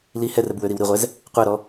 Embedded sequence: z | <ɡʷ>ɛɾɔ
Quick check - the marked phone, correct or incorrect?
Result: incorrect